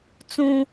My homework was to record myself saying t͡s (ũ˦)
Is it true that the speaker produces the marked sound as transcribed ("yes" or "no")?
yes